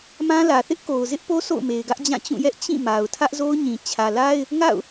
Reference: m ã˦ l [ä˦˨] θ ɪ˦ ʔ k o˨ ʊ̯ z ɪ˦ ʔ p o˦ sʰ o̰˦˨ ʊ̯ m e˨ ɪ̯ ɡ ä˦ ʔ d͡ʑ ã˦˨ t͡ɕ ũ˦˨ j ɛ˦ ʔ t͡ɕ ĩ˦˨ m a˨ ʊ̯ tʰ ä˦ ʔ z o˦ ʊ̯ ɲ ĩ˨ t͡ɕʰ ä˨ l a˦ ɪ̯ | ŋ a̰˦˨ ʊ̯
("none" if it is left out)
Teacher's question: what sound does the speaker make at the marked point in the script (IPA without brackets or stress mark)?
ä˨